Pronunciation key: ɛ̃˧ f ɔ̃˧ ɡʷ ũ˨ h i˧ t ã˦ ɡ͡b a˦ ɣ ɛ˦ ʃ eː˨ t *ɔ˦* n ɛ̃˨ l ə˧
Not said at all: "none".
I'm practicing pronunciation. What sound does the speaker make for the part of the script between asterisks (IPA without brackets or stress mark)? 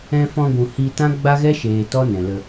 ɔ˦